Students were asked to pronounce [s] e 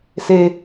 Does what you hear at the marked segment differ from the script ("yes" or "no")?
no